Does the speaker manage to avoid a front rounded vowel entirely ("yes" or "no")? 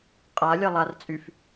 no